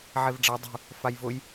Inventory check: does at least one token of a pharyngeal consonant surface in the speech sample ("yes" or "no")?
yes